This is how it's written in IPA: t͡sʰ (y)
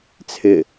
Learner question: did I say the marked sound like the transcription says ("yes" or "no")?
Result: no